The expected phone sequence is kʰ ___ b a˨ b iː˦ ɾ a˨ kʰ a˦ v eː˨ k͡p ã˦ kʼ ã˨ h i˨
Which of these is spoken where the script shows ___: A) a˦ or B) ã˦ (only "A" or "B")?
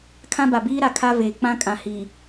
B